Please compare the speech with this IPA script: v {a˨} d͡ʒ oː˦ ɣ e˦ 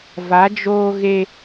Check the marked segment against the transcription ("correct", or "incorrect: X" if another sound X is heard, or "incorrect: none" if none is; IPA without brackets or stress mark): incorrect: a˨˦